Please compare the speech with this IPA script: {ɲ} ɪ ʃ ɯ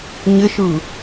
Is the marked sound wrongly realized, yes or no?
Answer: no